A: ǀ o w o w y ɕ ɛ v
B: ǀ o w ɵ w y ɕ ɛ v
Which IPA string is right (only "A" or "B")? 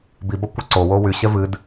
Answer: A